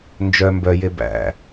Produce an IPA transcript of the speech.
nd͡ʒœ mbœ jebæ̰

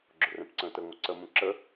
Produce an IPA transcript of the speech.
ɡ͡ǁʊrɛ̃pǀə̃ːtə ŋʷəǀəmũ ǁə

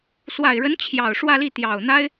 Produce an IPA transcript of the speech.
swa˨˩ɪ̯ɻə˧˥n t͡ɕʰjɑ˨˩ʊ̯ʂwä˥˧li˥˩ t̪jɑ˨˩ʊ̯n̪a˥ɪ̯

